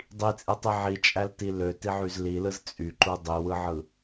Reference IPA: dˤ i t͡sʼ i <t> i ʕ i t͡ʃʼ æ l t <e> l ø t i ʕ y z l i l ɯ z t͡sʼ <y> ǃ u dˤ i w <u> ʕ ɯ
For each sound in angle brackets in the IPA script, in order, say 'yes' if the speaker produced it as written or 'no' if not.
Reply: no, no, yes, no

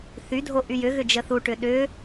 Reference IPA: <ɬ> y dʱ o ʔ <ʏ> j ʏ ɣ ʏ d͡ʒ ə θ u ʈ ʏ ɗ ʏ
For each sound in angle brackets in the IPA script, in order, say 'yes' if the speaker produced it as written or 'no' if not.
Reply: no, no

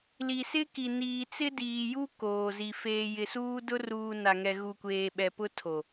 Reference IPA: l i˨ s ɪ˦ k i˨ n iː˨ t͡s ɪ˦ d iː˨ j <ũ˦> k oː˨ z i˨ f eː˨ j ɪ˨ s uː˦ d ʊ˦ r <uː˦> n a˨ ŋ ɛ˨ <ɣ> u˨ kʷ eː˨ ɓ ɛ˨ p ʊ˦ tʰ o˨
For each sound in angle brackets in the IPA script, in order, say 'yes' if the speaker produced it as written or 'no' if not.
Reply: no, no, yes

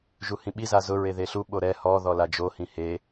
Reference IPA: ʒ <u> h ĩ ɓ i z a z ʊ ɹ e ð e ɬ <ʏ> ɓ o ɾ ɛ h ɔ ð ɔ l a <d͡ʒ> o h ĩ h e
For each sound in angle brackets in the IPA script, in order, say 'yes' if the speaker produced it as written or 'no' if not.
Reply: yes, no, yes

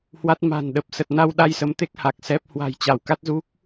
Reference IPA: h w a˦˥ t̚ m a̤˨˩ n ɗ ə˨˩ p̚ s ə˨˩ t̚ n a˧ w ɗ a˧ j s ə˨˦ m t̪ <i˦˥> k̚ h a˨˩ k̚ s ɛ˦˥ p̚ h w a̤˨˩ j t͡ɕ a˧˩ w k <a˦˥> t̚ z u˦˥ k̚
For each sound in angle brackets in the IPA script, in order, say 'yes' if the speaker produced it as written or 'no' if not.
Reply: no, yes

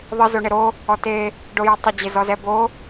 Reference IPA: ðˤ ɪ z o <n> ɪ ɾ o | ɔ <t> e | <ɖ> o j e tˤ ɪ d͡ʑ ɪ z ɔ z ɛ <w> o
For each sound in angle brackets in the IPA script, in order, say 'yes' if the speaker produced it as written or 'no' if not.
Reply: no, yes, yes, no

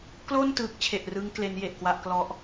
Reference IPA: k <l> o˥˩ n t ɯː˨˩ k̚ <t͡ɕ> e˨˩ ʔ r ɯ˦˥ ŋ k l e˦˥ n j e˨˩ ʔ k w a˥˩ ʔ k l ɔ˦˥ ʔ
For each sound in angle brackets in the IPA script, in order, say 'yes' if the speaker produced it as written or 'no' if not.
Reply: yes, no

